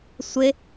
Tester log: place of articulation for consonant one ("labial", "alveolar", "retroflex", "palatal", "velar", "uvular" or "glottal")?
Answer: alveolar